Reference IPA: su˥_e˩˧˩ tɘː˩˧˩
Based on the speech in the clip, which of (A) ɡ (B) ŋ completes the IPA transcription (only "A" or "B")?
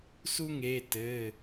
B